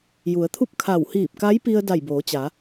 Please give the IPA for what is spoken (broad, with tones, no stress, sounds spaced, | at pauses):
j u˩˧ ə̯ t̪ʰ u˥˨ p̚ kʰ a˧˩ w h iː˧˩ p̚ k a˧˥ j p i˧ ə̯ d a˧˩ j b oː˩˧ t͡ɕ a˩˧